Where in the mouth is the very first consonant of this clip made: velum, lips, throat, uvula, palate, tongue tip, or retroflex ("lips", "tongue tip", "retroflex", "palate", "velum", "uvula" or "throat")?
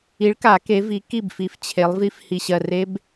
retroflex